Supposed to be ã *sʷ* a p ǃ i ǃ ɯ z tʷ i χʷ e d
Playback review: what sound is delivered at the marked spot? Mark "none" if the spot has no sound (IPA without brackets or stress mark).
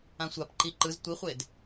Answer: sʷ